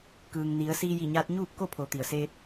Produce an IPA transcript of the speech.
k ɯː˩ ŋ n i˩˧ ə̯ s iː˧ j i˧˩ ɲ aː˧ t̚ ɲ uː˥˨ p̚ k o˥˨ pʰ o˩˧ t̪ i˩ ə̯ s eː˧ t̚

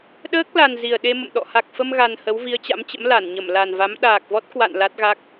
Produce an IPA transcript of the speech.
ɗ əː˦˥ k̚ l a˨˩ n z i˨˩ ə̯ ɗ e˧ m ə̰˧˨ m ɗ ɔ̰˧˨ h a˨˩ k̚ f ə˧ m ɣ a˨˩ n h ə˨˦ w v i˨˦ ə̯ t͡ɕ a̰˧˥ m t͡ɕ ə̰˧˥ m l a˧˩ n ɲ ə˧˩ m l a˨˩ n v a˨˦ m ɗ aː˨˩ k̚ v ɔ˦˥ t̚ k w a̰˧˨ n l a˦˥ t̚ ɣ a˦˥ k̚

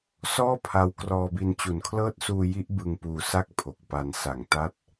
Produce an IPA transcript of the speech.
s ɔː˥˩ pʰ a˦˥ w k r ɔː˧ b i˧ n t͡ɕ u˨˩ n kʰ l ɤː˦˥ t̚ s uː˧ j i˦˥ ʔ b ɯ˧ ŋ p uː˧ s a˥˩ k̚ pʰ o˨˩ k̚ p a˧ n s a˨˩ ŋ t a˦˥ t̚

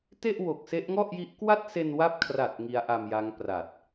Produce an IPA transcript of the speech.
t e˥˩ ʔ w o˨˩ k̚ s e˦˥ ʔ ŋ ɔ˥˩ ʔ j i˦˥ ʔ k w a˥˩ t̚ s e˧ n w a˦˥ p̚ kʰ r a˨˩ t̚ ŋ i˦˥ a̯ ʔ a˧ m j a˦˥ ŋ p r a˨˩ t̚

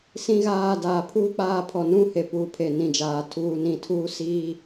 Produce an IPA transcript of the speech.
s ĩ˦ ɣ aː˦˨ d aː˨ pʰ uː˦ k͡p aː˦˨ pʰ ɔ˨ n ũ˦ h e˨ p uː˨ pʰ e˨ n ĩ˨ d͡ʒ aː˨ tʰ uː˨ n ĩ˨ tʰ uː˦ s iː˦

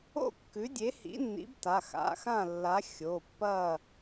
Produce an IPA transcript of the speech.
o̰˥˨ kː ʉ˨˥ dʲ e˨˥ h ḭ˨˥ nː ḭ˨˥ b t a˩˧˩ x a̰˩˧˩ x ã˥˨ lː a˨˥ xʲ o˩˧˩ pː ɐ˥˨

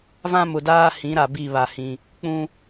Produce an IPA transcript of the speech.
v ã˦ m ʊ˨ d aː˦ h ĩ˨˦ ɾ a˨ b i˦˨ β a˨ h ĩ˨ | k͡p ũ˦

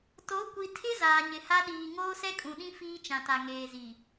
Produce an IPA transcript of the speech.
t o˨˦ kʷ i˨ tʰ ɪ˦ z aː˨ ɲ ɪ˨ h a˦ ɗ iː˨ ŋ oː˦ s ɛ˦ kʼ ũ˨ ɗ ĩ˦ f iː˦ t͡ʃ ã˨ t a˨ ŋ eː˨ z i˨

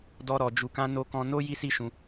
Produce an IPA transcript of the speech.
d ɔ˦ ɾ ɔ˧ d͡ʒ u˧ k ã˦ n o˦ k ɔ̃˦ n o˦ j i˦ s i˦ ʃ ũ˧

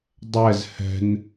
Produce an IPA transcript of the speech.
dˤ ɛ z h ɛ̤ n

